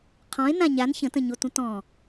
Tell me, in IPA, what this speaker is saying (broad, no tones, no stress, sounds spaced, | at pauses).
qʰ ɔ̃ e̯ n ã ɲ a n ç ə̃ t ə̃ ɲ o t ũ t ɔ̃